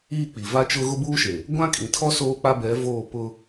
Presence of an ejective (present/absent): present